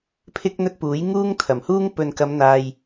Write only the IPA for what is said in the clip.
pʰ ɪ˥ k̚ n̪ ɵ˥ t̚ p uː˨˥ j ŋ uː˥ ŋ t̪ʰ ɐ˨˩ m h uː˥ ŋ p ɵ˨ n k ɐ˨˧ m n̪ aː˨ j

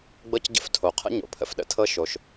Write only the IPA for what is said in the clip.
ɡ͡b ɤ˥ c ɟ ə̰˥ f tʰ o˩ qʰ ə̰˥ ɲ o̰˩ pʰ ə̰˩ f ɗ ə̰˥ tʰ ɤ˥ ʃ o˩ ʃ

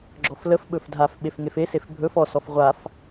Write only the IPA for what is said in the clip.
ɡ͡ǁ ɔ f l ə f ɓ ɵ f dʱ a f ɓ e f ŋ e f e s e f bʱ ɵ f ɔ s ɔ f ʁʷ a f

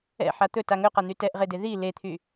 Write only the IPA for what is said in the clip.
ɛ̰ ħ a t̪ ɵ t a ŋ ɵ q a n̪ y t ɛ ʔ ʁ e d e ð i l e t̪ʰ y

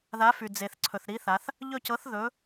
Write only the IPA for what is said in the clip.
ð a˨˥ f y˩ d͡z e˩ θ ǀʰ ɵ˩ θ ɾ i˨˥ θ a˩˧ θ | ʎ ɵ˦˨ c ɤ˨˥ θ ð ɵ˨˥

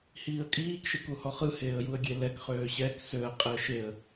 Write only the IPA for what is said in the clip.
h iː ə̯ kʼ iː k ʃ e k u h ɔ χ ɯ h eː ə̯ j u ə̯ ɡʲ e l ɛ k χ øː ɕ ɛ k s ø ə̯ qʼ e ə̯ ʃ e ə̯

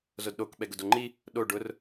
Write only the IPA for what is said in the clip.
z o d ɗ o k ɓ ɛ ɡ ʊ d o ŋ͡ǃ i | ɗ o ɖ ʊ r

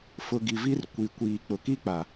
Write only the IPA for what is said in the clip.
f ʊ˨ ɡ i˨ v i˦ r kʷ i˨ kʷ iː˨ k͡p ʊ˨ k i˦ k͡p a˨

